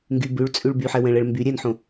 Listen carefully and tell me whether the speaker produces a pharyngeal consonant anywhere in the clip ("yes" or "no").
yes